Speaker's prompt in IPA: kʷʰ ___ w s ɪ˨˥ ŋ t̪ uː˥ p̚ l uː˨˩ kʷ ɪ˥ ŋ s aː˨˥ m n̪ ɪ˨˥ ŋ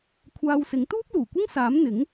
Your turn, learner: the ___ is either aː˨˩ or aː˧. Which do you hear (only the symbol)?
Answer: aː˧